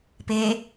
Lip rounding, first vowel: unrounded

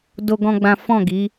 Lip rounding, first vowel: rounded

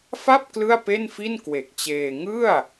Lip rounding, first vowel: unrounded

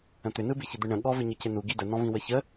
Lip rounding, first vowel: unrounded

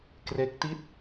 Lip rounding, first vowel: unrounded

